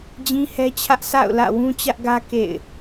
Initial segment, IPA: d͡ʑ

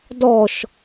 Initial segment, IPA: d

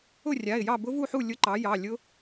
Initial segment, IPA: ʊ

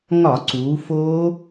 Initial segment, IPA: ŋ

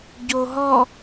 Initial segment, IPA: ɟ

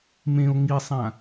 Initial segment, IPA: m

